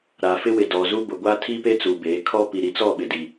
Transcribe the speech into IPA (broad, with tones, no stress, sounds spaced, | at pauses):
ɾ a˨ f ɪ˦ w ɪ˨ d ɔ˨ z u˦ b ʊ˨ ɡʷ a˦ tʰ i˦ p e˦ t͡s u˨ b eː˨˦ kʰ ɔ˦ p i˨ ɾ i˨ t͡s ɔ˦˨ ɓ ɪ˨ d i˨